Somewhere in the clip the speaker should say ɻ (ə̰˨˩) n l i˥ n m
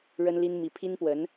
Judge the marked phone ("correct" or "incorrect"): incorrect